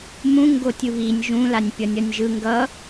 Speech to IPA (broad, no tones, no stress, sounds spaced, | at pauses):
m ũ ŋ ɡ o tʲ ɯ β i nʲ ʒ ũ l a nʲ pʲ ʌ nʲ ʌ nʲ ʒ ɯ ŋ ɡ ʌ